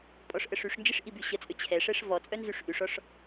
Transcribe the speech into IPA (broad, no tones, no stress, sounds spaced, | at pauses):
pʼ ɔ ʂ ʔ ə ʂ y ʂ n d͡ʒ i ʂ ʔ i b y ɕ ə t͡sʼ ø t͡ɕʰ ɛ ʂ ɛ ʂ v ɔ t͡sʼ œ n z y ʂ ʔ y ʂ ɔ ʂ